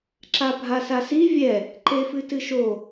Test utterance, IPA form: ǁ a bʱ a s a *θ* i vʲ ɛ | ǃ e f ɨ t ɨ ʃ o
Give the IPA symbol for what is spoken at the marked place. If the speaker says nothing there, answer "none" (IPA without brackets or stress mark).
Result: s